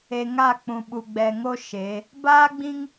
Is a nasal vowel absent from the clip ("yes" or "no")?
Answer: no